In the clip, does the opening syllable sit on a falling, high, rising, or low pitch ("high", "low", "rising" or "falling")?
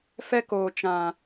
high